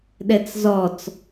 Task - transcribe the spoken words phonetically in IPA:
ɗ ɛ t͡s z ɔ t͡s

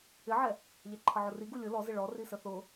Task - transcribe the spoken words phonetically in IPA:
ɪ ʕ ɛ | ʎ ɛ ǃʰ ʌ ʕ ʊ r i ɡ u lʲ ʊ l ɔ z ɪ ɭ ɔ r i s ə θ ʊ

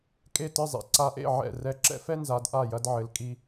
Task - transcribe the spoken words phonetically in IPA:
kʼ e˥˩ t ɨ˥˩ zˤ ḭ˨˦ ǀ a˨˦ ʔ ḛ˥˩ ʕ ɛ̰˥˩ r ɛ˨˦ ǁ ɛ̰˦ f ɛ˦ n z a˨˦ d ʔ a˥˩ j ɐ˦ d ʕ ɘ˨˦ l kʼ i˦

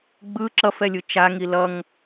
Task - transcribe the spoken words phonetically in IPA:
ɡ͡b ɯ ǁ ʌ f ɛ lʲ ɯ t͡ʃ a ŋ i l ʌ ŋ

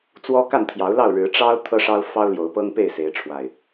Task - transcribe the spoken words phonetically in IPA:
t͡s w ɔ˦ k a˥˨ n t̪ʰ j ɑ˨˦ ʊ̯ l ɑ˥˨ ʊ̯ ɻ ɻ̩˨˦ ʈ͡ʂ ɑ˦ ʊ̯ t̪ʰ ɤ˦ ʂ ɑ˦ ʊ̯ f ɑ˦ ʊ̯ l j o˨˦ ʊ̯ p ɤ˦ ŋ p e˥˨ ɪ̯ s e˨˦ ɪ̯ ʈ͡ʂʰ w a˨˩ ɪ̯

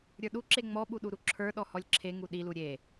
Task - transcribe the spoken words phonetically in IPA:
ɾʲ ə˞ ɗ u ǁ e ŋ͡m ɔ ɓ u ɗ u ɾ u ǁʰ ə˞ ɗ ɔ h ɔ lʲ ǁʰ e ŋ u ɗ i l u ɾʲ e

